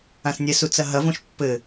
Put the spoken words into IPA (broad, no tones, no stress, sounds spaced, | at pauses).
ã s nʲ ɛ s u t͡s ɐ ɦ ɐ v õ ʃ pː ɘ